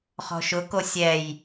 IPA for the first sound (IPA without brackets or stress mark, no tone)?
χ